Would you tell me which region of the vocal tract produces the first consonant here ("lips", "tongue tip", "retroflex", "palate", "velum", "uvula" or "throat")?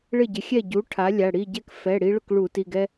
retroflex